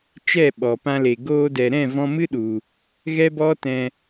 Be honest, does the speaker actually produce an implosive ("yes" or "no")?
yes